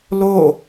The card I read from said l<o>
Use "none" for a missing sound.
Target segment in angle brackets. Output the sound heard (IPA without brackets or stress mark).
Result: o